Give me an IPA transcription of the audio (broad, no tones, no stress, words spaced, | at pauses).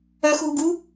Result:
œxɦuɡu